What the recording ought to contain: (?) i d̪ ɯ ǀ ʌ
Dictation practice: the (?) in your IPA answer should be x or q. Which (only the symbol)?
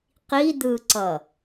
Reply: q